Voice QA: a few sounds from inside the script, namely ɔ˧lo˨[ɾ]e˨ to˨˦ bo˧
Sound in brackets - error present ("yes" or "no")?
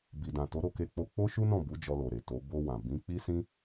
no